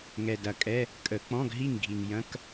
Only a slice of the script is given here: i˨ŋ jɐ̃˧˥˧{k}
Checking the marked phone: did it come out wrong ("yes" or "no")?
no